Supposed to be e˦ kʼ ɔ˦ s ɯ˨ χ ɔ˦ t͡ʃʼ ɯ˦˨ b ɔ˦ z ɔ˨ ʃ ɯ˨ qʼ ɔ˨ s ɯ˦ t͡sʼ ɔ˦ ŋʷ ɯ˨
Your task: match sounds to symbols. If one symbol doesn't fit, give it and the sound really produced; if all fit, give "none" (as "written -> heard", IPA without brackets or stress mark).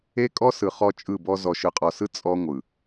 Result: none